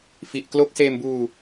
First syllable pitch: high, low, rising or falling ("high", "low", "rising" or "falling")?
low